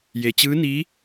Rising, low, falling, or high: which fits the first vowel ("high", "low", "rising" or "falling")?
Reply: low